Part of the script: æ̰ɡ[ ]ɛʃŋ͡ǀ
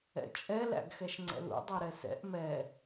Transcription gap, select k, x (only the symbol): x